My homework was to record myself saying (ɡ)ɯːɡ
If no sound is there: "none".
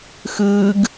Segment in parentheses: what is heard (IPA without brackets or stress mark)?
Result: x